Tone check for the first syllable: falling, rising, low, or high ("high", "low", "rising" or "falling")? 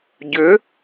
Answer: rising